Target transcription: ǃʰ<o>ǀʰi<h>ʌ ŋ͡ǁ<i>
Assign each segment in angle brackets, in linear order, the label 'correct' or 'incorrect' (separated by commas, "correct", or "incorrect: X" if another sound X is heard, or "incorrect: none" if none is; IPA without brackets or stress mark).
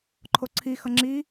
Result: correct, incorrect: x, correct